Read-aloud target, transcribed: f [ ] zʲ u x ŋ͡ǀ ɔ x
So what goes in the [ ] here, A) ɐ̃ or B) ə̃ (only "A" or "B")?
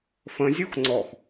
B